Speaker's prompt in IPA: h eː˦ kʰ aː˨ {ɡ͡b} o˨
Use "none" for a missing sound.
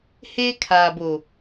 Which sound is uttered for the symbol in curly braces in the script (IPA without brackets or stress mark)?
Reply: b